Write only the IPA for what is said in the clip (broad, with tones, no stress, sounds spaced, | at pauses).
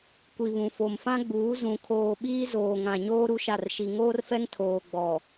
kʷ i˨ β ũ˨ f o˨ m f ã˦ ɡ͡b uː˨˦ z ũ˨ kʰ oː˨ ɓ iː˦ z oː˨ ŋ ã˨ ɲ oː˦ ɾ u˦ ʃ a˦˨ r ʃ i˨ ŋ oː˦ r f ɛ˦ ŋ tʰ oː˨ ɡ͡b ɔ˨